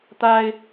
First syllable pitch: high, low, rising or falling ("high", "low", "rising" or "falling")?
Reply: high